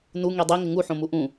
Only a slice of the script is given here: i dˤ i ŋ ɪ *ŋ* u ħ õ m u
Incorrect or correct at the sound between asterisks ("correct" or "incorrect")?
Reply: correct